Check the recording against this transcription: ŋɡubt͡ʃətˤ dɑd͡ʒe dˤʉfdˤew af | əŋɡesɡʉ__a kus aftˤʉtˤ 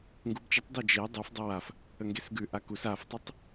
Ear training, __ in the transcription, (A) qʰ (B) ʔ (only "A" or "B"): B